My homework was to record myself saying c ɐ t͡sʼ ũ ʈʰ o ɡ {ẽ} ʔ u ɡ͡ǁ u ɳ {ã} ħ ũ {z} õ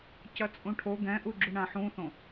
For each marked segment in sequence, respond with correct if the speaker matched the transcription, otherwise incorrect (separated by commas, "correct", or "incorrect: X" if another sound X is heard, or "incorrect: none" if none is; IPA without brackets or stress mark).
incorrect: ɛ̃, correct, incorrect: θ